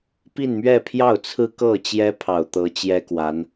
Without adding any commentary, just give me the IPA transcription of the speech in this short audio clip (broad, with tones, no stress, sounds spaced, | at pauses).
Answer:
p i˥˧ n m ɥ ɛ˥˧ pʰ j ɑ˥˩ ʊ̯ t͡sʰ ɹ̩˥ k ɤ˥˩ t͡ɕ j ɛ˥ pʰ ɑ˨˩ ʊ̯ t̪ ɤ˧˥ t͡ɕ j ɛ˥ k w a˧˥ n